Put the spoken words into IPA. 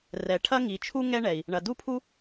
r ɛ˩ ʈʰ ɐ˥ ŋ i˩ t͡ʃʰ u˥ ŋ ɛ˥ ɳ ɛ˩ i̯ | ɳ ɐ˩ d u˥ pʰ u˥

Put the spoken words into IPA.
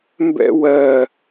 m b ɛ̰ w ɜ

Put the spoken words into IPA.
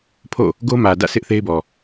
pʰ o̰˦˨ | ɡ o˦ m ä˨ d ä̰˦˨ sʰ ɪ˦ ʔ θ e˦ ɪ̯ b ɔ˨

